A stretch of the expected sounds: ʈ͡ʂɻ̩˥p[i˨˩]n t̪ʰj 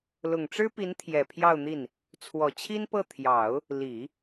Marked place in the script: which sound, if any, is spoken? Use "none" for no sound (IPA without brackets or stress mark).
i˧˥